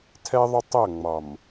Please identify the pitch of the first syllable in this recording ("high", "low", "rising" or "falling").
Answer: high